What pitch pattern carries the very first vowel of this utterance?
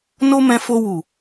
high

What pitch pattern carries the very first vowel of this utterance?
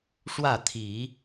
falling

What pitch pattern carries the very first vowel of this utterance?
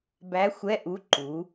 rising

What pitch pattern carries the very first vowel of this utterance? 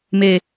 low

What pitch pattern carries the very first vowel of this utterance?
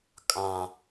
high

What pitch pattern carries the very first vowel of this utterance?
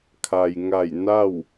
low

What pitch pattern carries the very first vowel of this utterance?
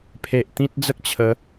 low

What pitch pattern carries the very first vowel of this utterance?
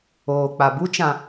low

